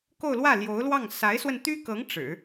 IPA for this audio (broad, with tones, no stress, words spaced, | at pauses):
ko˥˧ʊ̯lwä˥˩ljo˧˥ʊ̯lwɑ˥˩ŋ sa˧˥ɪ̯swə˧nt̪y˥kɤ˧˥ŋ ʈ͡ʂɻ̩˨˩˦